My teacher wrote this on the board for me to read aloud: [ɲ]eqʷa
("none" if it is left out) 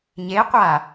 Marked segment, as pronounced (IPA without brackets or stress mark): ɲ